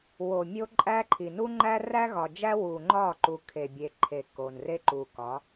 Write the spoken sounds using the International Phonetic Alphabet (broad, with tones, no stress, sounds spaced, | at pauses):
w o˨ mʲ o˦ ǃʼ æ˦ ǃʰ i˨ n u˦ ŋ͡ǃ æ˦ r æ˦ ɣ ɒ˨ d͡ʒ æ˦ w u˨ ŋ͡ǃ ɒ˦˨ ǃ u˨ kʰ e˨ bʲ e˨ ǃʰ e˨ k o˨ n r e˦ ǃ u˨ k ɒ˨˦